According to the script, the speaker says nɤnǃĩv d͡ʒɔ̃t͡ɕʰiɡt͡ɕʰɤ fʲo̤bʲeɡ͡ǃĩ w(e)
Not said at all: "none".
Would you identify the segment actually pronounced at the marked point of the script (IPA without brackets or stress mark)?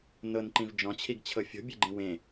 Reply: ẽ